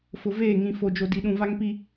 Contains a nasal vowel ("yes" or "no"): yes